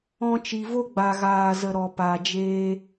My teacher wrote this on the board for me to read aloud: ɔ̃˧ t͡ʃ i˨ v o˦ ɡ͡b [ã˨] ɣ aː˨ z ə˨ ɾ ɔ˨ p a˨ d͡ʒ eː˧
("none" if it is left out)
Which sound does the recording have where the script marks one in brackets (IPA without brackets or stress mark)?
a˨